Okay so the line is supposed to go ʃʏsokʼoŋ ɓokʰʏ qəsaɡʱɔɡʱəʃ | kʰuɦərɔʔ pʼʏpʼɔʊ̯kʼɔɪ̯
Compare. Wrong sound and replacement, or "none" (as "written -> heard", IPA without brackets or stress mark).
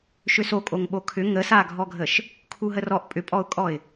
q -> ŋ